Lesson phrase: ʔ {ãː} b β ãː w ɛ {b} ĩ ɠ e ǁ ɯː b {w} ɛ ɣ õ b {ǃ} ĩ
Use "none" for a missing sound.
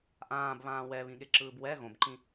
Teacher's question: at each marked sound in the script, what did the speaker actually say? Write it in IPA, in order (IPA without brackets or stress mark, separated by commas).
ãː, β, w, ǃ